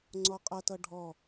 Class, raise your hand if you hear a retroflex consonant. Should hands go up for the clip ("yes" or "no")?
yes